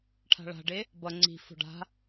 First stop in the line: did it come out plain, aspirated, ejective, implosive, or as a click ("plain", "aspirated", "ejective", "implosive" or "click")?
aspirated